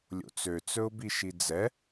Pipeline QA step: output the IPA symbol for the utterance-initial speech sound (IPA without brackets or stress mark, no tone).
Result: lʲ